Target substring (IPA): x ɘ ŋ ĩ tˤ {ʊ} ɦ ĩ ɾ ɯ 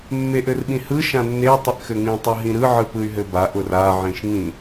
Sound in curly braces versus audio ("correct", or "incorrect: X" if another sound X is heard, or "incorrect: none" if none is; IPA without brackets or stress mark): incorrect: ɯ